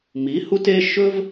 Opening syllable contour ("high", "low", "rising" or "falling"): rising